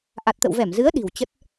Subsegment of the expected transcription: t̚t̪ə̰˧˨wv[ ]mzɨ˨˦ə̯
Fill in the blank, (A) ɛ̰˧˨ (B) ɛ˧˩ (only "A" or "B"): B